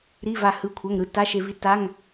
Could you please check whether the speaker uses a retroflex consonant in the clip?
no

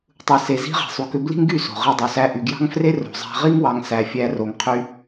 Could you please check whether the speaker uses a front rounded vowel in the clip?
yes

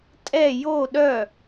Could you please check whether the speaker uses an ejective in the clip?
yes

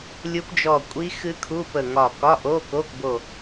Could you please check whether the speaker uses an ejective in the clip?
yes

